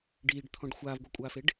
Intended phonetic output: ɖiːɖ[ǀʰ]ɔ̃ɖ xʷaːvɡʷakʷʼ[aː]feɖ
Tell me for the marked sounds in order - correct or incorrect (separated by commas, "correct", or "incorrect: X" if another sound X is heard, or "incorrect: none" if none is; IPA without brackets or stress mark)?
incorrect: t̪ʰ, correct